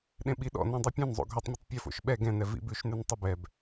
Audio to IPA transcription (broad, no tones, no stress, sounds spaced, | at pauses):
ɗ ẽ ɓ i ɗ ɔ̰ n ɛ̃ dˤ ʉ pʲ ɛ̃ n zˤ o̰ ɡʱ ɵ tˤ mʲ ʉ tˤ pʲ ɵ f o̰ ʃ ɓ ɛ ɡ ɛ̃ n ɛ v ḭ b ʉ ʃ n ʉ n tˤ i b ɛ b